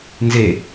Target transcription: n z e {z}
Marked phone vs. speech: incorrect: none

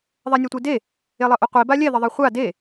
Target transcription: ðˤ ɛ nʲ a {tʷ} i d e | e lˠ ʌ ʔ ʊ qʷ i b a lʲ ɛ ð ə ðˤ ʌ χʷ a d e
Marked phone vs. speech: correct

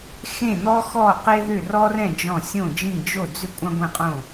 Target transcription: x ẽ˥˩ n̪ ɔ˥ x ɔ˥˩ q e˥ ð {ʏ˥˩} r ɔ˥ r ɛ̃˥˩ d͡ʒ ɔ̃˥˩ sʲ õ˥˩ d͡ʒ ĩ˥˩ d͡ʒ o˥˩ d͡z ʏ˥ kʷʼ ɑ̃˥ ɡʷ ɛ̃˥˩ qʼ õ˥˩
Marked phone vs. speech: correct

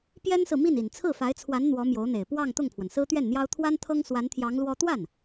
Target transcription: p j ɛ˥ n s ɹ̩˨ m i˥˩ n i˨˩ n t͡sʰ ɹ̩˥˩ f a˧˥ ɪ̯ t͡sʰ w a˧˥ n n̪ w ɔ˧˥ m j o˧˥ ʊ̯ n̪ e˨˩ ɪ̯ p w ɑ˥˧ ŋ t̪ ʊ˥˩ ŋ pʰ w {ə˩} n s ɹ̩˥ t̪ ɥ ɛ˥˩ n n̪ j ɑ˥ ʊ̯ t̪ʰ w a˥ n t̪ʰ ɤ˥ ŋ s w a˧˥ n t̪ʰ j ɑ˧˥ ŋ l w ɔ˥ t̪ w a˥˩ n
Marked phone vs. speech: correct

